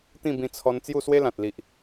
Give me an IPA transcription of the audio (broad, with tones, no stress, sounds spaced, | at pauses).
t̪ ĩ˥˧ b ĩ˧ t͡sʰ ɔ˧ n t͡s j u˥˧ s w e˦ l ã˨ t̚ l i˨ ʔ